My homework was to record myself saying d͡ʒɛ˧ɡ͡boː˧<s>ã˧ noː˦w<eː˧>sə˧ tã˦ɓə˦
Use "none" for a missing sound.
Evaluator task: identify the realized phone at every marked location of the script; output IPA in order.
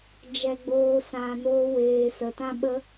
s, eː˧

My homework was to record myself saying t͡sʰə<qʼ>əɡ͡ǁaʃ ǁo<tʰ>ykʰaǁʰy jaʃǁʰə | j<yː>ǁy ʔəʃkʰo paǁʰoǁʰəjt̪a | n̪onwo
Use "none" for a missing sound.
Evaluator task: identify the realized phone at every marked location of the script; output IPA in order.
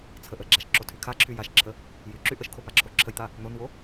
ʔ, tʰ, y

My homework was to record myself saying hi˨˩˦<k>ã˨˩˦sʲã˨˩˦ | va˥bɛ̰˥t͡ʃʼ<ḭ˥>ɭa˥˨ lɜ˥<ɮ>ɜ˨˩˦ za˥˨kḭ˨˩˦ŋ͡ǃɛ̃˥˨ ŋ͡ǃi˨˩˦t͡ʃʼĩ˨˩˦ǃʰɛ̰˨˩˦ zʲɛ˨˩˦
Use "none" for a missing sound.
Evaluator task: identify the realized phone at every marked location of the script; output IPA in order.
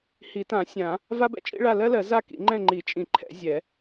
t, ḭ˥, l

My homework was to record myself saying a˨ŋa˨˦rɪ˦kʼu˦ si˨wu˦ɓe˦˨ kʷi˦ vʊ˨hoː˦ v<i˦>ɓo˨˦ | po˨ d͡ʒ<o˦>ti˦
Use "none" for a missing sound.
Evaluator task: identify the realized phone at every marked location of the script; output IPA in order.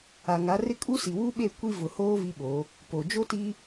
i˦, o˦

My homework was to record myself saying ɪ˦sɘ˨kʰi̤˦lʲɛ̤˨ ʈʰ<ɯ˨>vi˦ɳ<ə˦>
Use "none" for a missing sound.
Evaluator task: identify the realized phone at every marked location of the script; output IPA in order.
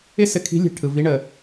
ɯ˨, ə˨

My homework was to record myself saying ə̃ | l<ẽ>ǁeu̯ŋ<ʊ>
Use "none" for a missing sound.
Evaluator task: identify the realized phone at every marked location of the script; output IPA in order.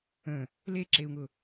e, ʊ

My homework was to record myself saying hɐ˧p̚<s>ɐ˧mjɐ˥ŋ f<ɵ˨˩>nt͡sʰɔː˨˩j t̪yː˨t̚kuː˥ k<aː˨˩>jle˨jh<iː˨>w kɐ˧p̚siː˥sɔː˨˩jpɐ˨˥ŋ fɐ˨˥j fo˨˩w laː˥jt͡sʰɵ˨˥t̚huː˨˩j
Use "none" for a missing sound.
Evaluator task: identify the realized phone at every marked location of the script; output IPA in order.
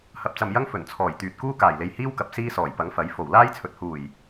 t͡s, ɵ˨˩, aː˨˩, iː˥

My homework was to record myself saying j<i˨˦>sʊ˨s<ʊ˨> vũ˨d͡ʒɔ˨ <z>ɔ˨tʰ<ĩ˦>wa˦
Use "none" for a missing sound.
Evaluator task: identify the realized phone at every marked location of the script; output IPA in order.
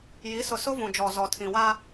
i˨˦, ʊ˦, z, ĩ˨

